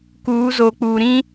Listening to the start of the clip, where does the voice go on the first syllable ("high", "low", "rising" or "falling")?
rising